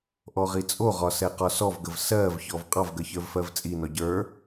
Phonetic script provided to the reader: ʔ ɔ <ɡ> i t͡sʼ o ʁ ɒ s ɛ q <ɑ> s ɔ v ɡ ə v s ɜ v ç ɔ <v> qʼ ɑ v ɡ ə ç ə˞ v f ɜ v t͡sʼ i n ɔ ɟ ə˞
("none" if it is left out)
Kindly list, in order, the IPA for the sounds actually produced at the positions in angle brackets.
ʁ, ɒ, v

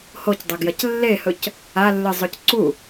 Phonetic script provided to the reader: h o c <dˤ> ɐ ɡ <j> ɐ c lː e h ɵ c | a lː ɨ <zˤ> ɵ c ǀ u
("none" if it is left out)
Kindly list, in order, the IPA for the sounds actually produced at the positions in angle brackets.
dˤ, j, zˤ

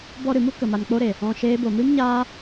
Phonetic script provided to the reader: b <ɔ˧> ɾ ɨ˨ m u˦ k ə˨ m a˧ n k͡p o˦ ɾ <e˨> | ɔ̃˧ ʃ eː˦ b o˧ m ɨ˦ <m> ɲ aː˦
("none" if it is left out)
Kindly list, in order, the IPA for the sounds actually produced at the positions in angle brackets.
ɔ˧, e˨, m

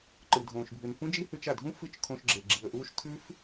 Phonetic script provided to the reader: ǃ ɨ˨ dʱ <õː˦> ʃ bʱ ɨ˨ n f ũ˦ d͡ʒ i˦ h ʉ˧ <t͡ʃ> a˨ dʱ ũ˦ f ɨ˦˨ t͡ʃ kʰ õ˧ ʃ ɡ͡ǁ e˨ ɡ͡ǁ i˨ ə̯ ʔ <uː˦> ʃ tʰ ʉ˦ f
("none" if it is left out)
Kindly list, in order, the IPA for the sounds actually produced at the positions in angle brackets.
õː˨, t͡ʃ, uː˦

